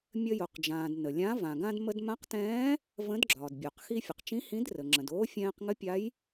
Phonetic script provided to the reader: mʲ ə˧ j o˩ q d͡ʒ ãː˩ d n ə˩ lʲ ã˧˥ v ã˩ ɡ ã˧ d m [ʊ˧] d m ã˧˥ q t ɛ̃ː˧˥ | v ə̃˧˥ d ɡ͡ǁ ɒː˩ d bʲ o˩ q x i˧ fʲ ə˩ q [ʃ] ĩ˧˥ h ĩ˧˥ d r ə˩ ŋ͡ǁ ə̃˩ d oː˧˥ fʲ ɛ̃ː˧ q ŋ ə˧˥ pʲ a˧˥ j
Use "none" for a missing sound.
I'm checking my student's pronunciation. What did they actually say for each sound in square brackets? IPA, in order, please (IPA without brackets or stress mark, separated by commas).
ə˧, t͡ʃ